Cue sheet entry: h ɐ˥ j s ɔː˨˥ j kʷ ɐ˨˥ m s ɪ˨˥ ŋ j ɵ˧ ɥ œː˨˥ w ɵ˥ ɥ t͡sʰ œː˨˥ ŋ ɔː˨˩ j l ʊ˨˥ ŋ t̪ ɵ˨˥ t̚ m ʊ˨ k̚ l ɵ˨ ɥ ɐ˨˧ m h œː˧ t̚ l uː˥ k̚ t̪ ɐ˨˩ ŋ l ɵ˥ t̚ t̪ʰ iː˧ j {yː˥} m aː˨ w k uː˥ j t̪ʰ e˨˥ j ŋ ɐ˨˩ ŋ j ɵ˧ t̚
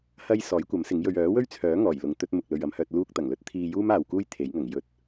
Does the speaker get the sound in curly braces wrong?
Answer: yes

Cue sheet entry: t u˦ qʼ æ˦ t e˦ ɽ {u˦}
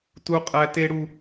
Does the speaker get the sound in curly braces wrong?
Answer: no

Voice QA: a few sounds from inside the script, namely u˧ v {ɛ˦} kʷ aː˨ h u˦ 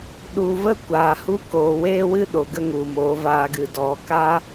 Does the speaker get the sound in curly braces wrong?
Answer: yes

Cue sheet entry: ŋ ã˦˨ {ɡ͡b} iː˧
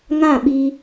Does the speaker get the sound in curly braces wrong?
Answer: yes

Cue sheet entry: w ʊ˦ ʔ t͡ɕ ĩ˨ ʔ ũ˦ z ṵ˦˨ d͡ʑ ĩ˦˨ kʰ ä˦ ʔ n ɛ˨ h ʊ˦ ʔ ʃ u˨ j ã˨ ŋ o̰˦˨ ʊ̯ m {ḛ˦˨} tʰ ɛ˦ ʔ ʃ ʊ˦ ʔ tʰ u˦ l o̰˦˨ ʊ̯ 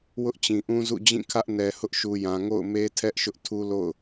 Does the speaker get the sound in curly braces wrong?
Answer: yes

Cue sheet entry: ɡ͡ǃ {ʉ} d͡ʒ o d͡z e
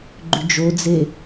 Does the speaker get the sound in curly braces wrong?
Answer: no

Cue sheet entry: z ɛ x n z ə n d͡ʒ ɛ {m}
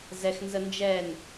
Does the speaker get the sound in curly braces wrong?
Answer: yes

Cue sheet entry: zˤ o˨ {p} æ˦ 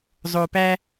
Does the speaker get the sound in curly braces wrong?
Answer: no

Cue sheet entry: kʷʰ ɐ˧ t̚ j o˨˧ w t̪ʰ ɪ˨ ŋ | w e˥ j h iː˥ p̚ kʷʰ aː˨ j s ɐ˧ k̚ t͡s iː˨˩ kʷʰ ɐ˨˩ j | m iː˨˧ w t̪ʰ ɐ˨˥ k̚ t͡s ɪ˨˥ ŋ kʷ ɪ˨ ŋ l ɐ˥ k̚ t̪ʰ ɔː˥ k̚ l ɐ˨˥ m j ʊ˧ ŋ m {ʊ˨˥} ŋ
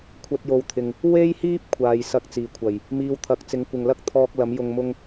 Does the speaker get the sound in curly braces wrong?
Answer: yes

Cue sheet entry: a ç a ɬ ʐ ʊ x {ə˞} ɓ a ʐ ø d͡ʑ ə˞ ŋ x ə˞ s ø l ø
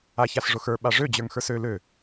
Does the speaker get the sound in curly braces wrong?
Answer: no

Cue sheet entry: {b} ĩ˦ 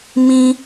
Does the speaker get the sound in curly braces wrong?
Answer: yes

